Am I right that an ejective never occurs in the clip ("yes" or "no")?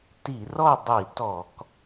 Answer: yes